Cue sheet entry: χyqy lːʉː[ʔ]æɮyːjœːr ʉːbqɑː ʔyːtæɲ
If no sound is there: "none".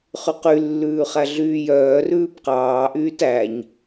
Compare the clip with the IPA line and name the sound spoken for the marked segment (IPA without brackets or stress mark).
χ